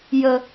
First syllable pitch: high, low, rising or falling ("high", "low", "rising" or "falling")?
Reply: low